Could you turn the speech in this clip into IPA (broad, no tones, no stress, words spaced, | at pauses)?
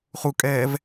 χukʼɛːv